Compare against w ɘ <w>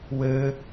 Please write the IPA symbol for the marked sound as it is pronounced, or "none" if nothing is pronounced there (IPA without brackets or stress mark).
none